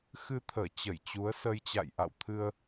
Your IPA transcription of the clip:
x ɨ˧ t̪ʰ əː˧˩ t͡ɕ ə˧˩ j t͡ɕ u˨˦ ə̯ s ə˧ j t͡ɕ a̰˧˨ j ʔ a̰˧˨ w t̪ʰ ɨ˧ ə̯

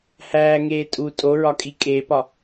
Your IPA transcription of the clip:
h æː ŋ eː tʼ u tʼ o ɹ ɒ kʼ i kʼ e p ɒ

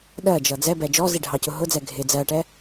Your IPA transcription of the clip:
ɗ ɜ d͡ʒ ʌ d͡z ɛ b ɛ d͡ʒ ɔ z i ɖʱ ɑ c ʊ ɦ ʊ d͡z ɛ ɡʱ ɪ d͡z ɜ ʈ ɛ

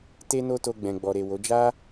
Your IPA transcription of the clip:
t e˦ n o˦ t o˧ ɡ͡b ɛ̃˨ ɡ͡b ɔ˨ ɾ e˨ w o˨˦ d͡ʒ a˦

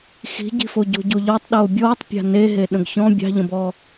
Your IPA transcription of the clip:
x i̤ ɟ i̤ f o ɟ o̤ ɟ o ʎ ɒ tˤ ɗ oː bʲ ɔː tˤ pʲ a̤ n e ɦ e ɗ ə̃ ɡ ç ɔ̃ bʲ ɑ̤ ʎ ə̃ b ɔ

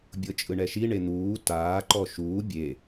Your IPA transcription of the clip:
bʲ ɤ t͡ʃʼ ɯ ɳ ɛ ʃ i ɳ e n̪ uː t aː ǃ ɔ ʃ uː bʲ e

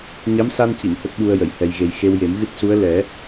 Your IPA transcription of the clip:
ɲ a˧˥ m s a˧ n c i˨˩˨ n h ə˦˥ k̚ ɓ u˧ ə̯ j ə˨˩˨ j h ɛ˨˩ j ɣ e˨˩ j x e˧ w j e˨˩˦ m ɣ ɨ˦˥ t̚ s u˧˥ ə̯ l ɛ˨˩˦

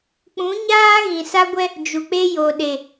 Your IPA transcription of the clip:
k͡p ũ˨˦ ɲ aː˦ ɣ ĩ˨ s a˦ ɡʷ ɛ˦ | d͡ʒ u˨ k͡p e˦ j o˨ ɗ e˨

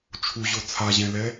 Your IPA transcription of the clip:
t͡ʃʰ u ʑ o t͡sʰ a ʑ ɛ̃ l ɛ

